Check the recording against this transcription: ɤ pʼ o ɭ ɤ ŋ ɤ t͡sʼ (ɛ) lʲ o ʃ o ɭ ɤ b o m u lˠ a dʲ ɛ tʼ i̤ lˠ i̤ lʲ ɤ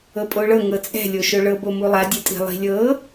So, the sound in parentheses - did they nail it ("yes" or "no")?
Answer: no